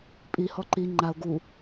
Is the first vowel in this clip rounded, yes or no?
no